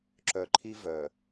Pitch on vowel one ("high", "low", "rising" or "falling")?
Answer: low